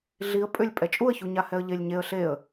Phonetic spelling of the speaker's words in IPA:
ɮiə̯ pʼʏlʲ pʼɛt͡ʃʼuə̯çuɲa hɛə̯ʎelʲɲeə̯ ɬeə̯

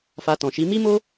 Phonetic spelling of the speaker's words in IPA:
fa˧tɔ̃˨ʃi˨˦ mi˦mo˦

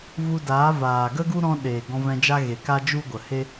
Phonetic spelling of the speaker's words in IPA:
vu˧daː˨˦vaː˨ ɡə˦ɡu˦ɾɔ̃˧ ɗe˨ ɡɔ̃˧vɛ̃˧d͡ʒa˦ɣe˨ ka˦d͡ʒu˦ɡʷə˨ he˦

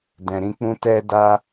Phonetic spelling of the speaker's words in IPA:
dɛ̃˨ɾĩ˧k͡pũ˦ tɛ˧ da˧

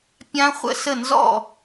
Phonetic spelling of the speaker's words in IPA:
pʲã˦˥χʷə̰˥˩sə˥˩nzɔ̰˥˩

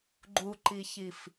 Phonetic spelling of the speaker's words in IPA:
ɡ͡ǃuǃiçif

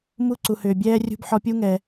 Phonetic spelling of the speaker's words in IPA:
mu˧ǀu˩hʏː˩ bʲɛː˧ rʲṳ˧b ħɔ˧pʲu˥ ŋɛ˩

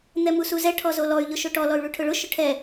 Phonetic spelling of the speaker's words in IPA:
n̪ɛmusuzɛ ʈʰɔzolɔy̯ ʎʊʃoʈɔ lɔy̯ɭuʈʰʊɭʊ ʃʊʈʰɛ

